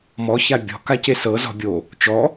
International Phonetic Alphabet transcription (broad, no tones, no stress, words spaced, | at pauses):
mɔ çabʲɔ̤ kacesɤ zɔ̤bʲo | t͡ʃɔ